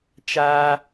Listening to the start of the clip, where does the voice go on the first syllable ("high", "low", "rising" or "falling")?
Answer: high